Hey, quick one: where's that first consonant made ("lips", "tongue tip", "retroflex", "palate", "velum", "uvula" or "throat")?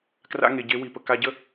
velum